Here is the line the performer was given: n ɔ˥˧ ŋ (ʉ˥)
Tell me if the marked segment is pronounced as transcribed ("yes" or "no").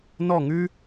yes